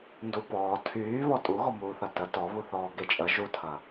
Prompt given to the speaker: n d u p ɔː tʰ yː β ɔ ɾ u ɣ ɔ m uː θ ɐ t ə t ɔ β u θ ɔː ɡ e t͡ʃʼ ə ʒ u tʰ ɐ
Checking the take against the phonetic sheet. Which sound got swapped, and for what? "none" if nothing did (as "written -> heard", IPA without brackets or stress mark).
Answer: ɾ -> tʼ